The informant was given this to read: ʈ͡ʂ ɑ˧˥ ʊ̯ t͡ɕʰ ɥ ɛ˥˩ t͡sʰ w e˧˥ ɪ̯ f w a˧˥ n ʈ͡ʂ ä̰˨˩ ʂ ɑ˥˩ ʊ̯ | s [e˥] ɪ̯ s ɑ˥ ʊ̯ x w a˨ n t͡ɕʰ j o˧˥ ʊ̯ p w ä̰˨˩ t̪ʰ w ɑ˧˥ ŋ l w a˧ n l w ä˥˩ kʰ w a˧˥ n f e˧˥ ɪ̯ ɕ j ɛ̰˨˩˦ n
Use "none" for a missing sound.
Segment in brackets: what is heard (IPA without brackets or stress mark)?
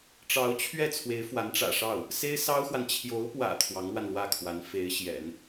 e˥